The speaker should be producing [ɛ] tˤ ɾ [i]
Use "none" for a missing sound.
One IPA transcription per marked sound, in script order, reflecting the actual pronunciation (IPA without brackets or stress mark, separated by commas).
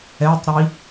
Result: ɛ, i